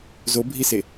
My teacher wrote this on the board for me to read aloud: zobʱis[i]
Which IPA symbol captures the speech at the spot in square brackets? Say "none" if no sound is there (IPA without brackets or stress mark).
e